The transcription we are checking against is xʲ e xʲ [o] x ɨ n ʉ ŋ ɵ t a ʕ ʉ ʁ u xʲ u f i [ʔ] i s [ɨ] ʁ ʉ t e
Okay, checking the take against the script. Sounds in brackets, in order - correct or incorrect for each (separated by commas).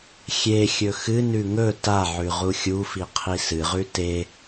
incorrect, incorrect, correct